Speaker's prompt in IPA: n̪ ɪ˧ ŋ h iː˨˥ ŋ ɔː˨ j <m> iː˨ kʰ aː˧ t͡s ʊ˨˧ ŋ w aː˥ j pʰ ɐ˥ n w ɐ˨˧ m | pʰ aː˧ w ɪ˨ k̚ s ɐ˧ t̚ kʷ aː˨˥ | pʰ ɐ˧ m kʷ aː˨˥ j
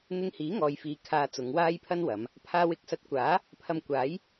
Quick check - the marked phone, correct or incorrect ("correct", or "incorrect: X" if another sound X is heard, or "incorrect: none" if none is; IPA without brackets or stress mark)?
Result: incorrect: f